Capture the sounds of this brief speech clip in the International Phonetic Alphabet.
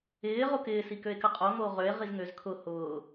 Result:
ɪː ʁ o k ɪː s i k ø e̯ k ə qʼ o ŋ oː ʁ ø e̯ ʁ i z ŋ ø z kʰ ʊ h ʊː

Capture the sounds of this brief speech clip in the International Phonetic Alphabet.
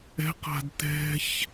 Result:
ɛ̤ q a̤ d t ɛ̤ ç

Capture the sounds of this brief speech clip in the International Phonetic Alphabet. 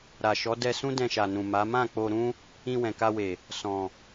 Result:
ɾ a˨ ʃ ɔ˨˦ d ɛ˧ s ũ˦ d ɛ̃˧ ʃ a˨ n ũ˨ m a˨˦ m ã˦˨ k͡p o˧ ɾ ũ˦ | ĩ˧ w ɛ̃˨ k a˧ w e˨ | s ɔ̃˨

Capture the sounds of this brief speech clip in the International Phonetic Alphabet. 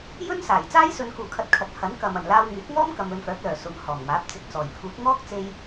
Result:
j ɵ˥ n s aː˨˩ j t͡s aː˥ j s ɵ˨ n k uː˨˩ kʰ ɐ˨˥ t̚ kʰ ɐ˨ t̚ h ɐ˨˥ n k ɐ˨ m ɐ˨˩ n l aː˧ w ŋ yː˨˥ k̚ ŋ ɔː˥ m k ɐ˨ m ɵ˨ n f œː˨˥ k̚ l œː˨˩ s ʊ˨ ŋ h ɔː˨˩ ŋ m aː˨˥ p̚ t͡s ɪ˨ k̚ t͡s ɔː˨˩ j pʰ uː˨˥ k̚ ŋ ɔː˥ k̚ t͡s e˥ j

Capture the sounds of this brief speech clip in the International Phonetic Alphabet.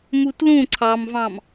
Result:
m u t l ũ ǀʰ ɑ m v ɑ̃ m

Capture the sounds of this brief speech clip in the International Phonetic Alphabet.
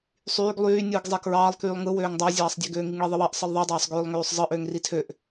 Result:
sˤ yː ɡ lˠ yː nʲ ɯː ɡ zˤ e k ɹ ɑː lˠ k yː lˠ ŋ ɯ w øː ŋ dˤ ɑ zʲ ɑː sˤ dʲ e ɡ øː ŋ i ŋ ɭ e ðˤ ɯ w ɑ ʔ sˤ ɯ lˠ ðˤ i dˤ ɑː sˤ ɡ øː lˠ ŋ øː sˤ zˤ ɯ ʔ øː ŋ r i tʰ ø ʔ

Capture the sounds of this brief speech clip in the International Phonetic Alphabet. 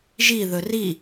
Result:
ʒ i ð ɵ r i

